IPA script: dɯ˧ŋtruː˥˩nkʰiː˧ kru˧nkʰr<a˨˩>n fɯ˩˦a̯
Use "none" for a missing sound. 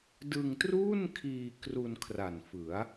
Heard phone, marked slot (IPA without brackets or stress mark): a˨˩